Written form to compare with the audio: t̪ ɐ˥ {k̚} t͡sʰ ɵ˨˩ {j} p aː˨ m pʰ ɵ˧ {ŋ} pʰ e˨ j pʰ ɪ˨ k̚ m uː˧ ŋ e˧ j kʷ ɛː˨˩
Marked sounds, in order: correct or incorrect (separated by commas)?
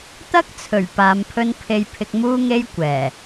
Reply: correct, incorrect, incorrect